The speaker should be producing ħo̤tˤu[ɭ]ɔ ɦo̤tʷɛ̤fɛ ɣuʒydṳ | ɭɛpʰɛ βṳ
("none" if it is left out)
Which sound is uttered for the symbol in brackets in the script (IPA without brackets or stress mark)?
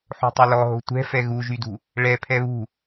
l